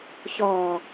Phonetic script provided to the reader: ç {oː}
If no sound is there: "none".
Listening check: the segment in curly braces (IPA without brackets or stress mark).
ɔː